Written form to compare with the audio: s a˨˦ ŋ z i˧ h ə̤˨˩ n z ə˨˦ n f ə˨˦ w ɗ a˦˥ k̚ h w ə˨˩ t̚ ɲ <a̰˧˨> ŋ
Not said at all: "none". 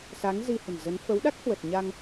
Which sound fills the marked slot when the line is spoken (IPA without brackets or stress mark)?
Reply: a˧